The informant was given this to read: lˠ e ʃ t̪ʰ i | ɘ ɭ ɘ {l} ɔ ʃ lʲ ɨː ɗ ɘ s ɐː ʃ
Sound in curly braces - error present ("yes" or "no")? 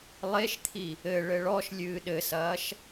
yes